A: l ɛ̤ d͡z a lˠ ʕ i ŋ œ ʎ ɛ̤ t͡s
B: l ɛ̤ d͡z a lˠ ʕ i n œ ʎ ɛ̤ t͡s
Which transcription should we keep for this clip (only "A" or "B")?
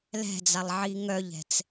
A